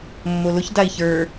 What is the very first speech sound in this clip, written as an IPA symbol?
mː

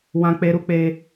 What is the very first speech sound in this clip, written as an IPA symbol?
w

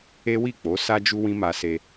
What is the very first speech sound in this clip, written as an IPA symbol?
e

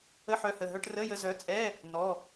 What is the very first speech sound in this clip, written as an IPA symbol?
ə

